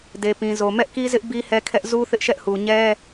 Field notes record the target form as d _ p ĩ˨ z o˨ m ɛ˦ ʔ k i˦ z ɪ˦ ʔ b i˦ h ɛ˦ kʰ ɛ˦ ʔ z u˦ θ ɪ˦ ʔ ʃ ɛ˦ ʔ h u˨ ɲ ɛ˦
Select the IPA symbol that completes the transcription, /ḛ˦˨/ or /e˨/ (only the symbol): e˨